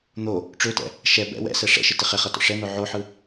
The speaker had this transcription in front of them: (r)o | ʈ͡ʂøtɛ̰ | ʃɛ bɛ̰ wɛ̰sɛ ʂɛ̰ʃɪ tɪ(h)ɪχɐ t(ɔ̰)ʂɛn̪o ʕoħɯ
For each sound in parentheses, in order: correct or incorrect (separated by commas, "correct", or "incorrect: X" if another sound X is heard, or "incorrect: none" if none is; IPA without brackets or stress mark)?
incorrect: n̪, incorrect: χ, correct